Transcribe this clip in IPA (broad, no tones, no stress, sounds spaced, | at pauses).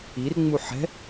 i r ŋ͡m u ħ ɛ̤